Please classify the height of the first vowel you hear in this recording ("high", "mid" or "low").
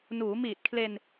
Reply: high